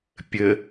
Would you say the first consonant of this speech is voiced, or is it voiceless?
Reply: voiceless